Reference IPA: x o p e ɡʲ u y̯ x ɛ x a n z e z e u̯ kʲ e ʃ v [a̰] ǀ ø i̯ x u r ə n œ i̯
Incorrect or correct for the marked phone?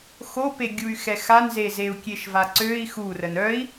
incorrect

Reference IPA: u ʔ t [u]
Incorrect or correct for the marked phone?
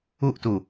correct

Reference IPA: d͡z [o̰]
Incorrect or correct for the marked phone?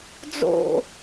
correct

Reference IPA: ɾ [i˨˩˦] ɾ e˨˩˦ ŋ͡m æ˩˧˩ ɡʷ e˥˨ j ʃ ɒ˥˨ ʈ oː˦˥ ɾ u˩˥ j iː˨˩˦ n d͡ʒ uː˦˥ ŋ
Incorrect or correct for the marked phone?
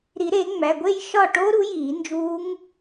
correct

